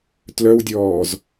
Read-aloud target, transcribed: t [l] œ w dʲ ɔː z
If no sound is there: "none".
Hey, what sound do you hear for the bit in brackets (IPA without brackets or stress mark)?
l